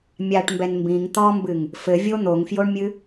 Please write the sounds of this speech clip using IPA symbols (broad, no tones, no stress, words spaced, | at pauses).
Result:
mʲaʈmbɛn mbĩŋ t̪ɔmbɨŋ | fɘvʲo n̪oŋfjoɳmʲɨ